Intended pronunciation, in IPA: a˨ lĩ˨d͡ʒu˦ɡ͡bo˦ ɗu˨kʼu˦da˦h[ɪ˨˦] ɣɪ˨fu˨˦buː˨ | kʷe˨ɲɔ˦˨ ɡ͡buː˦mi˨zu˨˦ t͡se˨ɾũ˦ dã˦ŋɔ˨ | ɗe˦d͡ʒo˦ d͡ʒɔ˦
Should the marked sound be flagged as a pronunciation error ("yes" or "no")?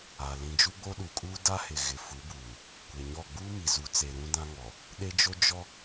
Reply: yes